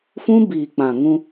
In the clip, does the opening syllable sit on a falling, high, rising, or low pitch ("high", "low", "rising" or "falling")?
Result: high